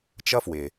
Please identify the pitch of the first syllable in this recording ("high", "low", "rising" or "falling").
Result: high